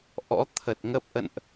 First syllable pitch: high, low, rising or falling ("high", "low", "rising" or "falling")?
rising